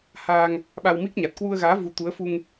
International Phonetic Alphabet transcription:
h aː˧ ŋ | ɓ a˧ w m i˦˥ k̚ ɲ a˨˩ t̚ k w u˧ ə̯ ɣ aː˨˦ v u˨˦ t̪ u˨˦ ə̯ f u˧ ŋ

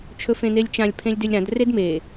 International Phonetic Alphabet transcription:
t͡ʃʰ ɵ f ẽ n̪ e lʲ t͡ʃ ã lʲ pʰ ẽ lʲ d ʏ lʲ ɾ ã d r e d m e

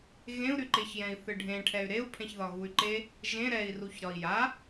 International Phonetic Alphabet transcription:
ɣ ẽ u̯ ɾ y ǃ e ç j ɛ̃ i̯ θ ɨ ɖʱ ẽ ʈʰ ɛ y̯ ɾ e u̯ pʰ ɛ̃ ç ð ɒ ɣ u y̯ ǃ e | ʒ ẽ ɾ ɛ i̯ r u ç ɾ ɒ i̯ j a

